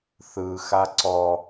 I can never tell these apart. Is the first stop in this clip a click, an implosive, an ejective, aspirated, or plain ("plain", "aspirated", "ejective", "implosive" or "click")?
click